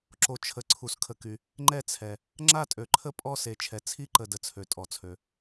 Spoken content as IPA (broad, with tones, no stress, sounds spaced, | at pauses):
ǁ o˩ t͡ʃʰ ə˩ ǀʰ u˩ s kʰ ə˩ k y˩ | ŋ͡ǃ ɛ˦˨ t͡sʰ ɛ˩ | ŋ͡ǁ a˦˨ tʼ ø˩ ǃʰ ə˦˨ pʼ ɔ˦˨ s e˩ t͡ʃʰ ɛ˩ t͡sʰ i˦˨ ǃ ə˩ d ə˩ t͡sʰ ø˩ tʼ ɔ˩ t͡sʰ ø˩